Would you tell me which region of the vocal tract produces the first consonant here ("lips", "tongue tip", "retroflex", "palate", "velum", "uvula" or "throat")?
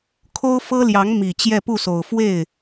velum